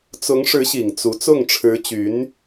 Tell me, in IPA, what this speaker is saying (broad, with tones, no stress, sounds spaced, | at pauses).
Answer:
t͡s ʊ˧˥ ŋ ʂ ɻ̩˧˥ ɕ i˨˩ ŋ t͡s u˧˥ t͡s ʊ˥˩ ŋ ʈ͡ʂʰ ɻ̩˧˥ t͡ɕ y˧˥ n